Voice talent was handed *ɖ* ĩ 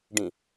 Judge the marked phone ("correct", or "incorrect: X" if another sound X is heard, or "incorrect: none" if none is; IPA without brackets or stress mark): correct